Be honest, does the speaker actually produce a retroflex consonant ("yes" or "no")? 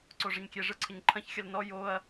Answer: yes